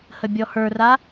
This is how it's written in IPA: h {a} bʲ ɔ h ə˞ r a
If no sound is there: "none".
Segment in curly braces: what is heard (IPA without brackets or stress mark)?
ə